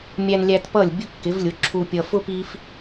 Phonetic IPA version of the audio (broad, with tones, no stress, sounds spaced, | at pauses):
mʲ æ˧ n lʲ æ˧ t p ʌ˥˩ lʲ bʲ ʊ˥ kː ɪ˩˥ v lʲ ʊ˩˥ ǁʰ u˧ pʲ ʌ˧ f ʊ˥ p i˥ f